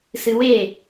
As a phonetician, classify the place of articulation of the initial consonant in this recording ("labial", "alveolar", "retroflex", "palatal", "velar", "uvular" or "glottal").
alveolar